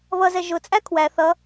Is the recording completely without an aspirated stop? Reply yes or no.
no